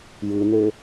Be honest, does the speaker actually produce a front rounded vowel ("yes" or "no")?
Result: yes